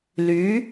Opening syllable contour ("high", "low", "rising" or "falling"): rising